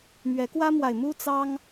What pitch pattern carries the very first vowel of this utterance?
rising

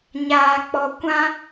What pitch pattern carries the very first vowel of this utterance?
low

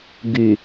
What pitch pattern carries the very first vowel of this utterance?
low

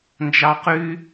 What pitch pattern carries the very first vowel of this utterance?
high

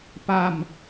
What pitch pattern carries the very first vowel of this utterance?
falling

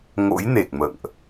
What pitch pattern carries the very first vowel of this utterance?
rising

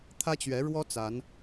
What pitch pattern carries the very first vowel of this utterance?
high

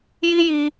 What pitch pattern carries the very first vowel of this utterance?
high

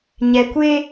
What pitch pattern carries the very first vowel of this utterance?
low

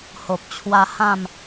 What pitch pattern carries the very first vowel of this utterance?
low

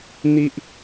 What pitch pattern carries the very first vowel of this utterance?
high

